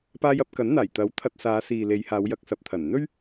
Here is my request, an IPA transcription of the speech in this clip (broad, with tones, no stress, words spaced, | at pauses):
paː˧jɐ˧p̚ kɐ˨˥nn̪aː˨˩j t̪ɐ˨˥w t̪ʰɐ˧t̚ saː˨˧siː˨le˨˧j haː˨˧wjɐ˧k̚sɐ˨p̚t̪ʰɐ˨˩n n̪ɵ˥ɥ